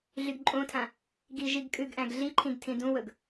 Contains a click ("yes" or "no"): yes